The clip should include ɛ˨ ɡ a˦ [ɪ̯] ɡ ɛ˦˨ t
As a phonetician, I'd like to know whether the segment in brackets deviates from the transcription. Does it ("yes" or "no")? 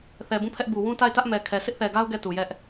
yes